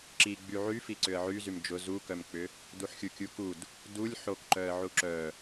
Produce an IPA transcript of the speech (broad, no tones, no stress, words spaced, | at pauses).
ǁiɡ͡by ʕyfi ǀʏə̯ʕyzym d͡ʒʊ zukœmk͡pʏ | duħxʲukʲukud | dulʲ ħokǃœə̯ʕu ǁœ